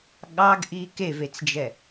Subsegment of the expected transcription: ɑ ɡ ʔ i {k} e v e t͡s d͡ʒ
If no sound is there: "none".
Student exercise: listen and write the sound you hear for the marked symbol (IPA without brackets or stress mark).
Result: k